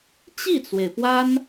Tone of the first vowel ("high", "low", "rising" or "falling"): falling